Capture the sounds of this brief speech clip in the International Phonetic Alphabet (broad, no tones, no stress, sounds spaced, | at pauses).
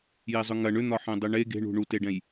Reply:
j e zˤ ʏ ŋ ɐ ɳ ʏ n̪ ɒ ħ ɛ̃ dˤ ʏ ɳ e ɡ e̤ ɳ ṳ ɳ u t e ɖ ɛ̃ j